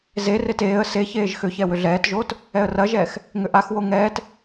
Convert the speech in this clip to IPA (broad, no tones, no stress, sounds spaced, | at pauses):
z e r e t eː ə̯ s e ç eː ʒ x ʏ ç ɛ w ʏ ɮ ɛː t ʒ oː t | ɛ ə̯ r ɐ ʒ ɛː x | ŋ ʏ ʔ a x w o ŋ ɛː t